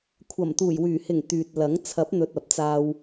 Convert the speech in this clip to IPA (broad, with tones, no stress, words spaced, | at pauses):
kʷʰɐ˨˩mt̪uː˨˩jwyː˨˩hɪ˨˩ŋ t̪yː˨t̚lɐ˨˥ŋ t͡sʰɐ˨˥p̚n̪ɵ˨t̚ ɐ˨p̚t͡saː˧w